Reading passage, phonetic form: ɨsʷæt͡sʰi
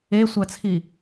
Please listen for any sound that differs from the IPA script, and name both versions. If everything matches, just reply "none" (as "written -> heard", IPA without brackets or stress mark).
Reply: ɨ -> e